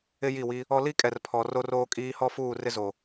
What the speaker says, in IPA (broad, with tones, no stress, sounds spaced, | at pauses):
ɪ˦ j i˦˨ w i˦ | ɔ˦ l i˦ kʼ ɛ˨ r pʰ ɔ˨ r o˦ r oː˦ kʼ iː˦ h ɔ˦ f uː˦˨ r ɪ˦ z o˨